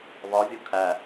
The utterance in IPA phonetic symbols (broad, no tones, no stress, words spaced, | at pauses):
βɒvʲu kʰæ